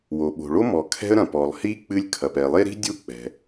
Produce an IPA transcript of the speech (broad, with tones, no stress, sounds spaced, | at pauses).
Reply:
w o˩ ɓ o̤˩ ɭ o˥ m ɔ˩ kʰ ɛ̤˥ ə̯ ɾ ɐ̃˩ p ɔ˩ lˠ h i˥ k͡p ɨ˥ lʲ kʰ ɐ˩ p ɛ˩ lˠ e˥ ɾ i̤˥ dʲ u˥ k͡p ɛ̤˩